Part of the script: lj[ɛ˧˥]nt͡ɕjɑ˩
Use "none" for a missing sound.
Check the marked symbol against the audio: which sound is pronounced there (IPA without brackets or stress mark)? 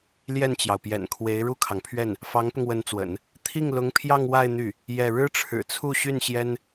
ɛ˥˩